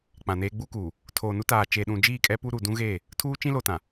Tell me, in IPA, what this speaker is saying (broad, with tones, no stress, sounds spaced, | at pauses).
k͡p ã˨ n eː˦ ɡ͡b u˦ k uː˨ | tʰ oː˨ n u˦ t aː˨ t͡ʃ e˨ ɗ ũ˨ d͡ʒ iː˦˨ kʼ ɛ˦ p u˦ ɾ uː˨ d ũ˦ ɣ eː˦˨ | tʰ uː˦ t͡ʃ ĩ˦ l o˨ t ã˨